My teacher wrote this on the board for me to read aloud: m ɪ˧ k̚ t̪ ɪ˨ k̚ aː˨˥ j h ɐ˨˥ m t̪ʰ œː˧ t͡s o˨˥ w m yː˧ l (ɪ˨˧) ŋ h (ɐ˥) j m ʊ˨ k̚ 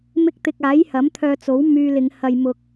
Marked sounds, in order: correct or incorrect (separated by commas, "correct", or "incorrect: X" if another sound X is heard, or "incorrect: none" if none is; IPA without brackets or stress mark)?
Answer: correct, incorrect: ɐ˨